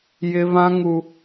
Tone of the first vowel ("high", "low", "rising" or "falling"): high